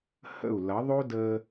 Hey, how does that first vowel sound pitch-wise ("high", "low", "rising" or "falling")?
falling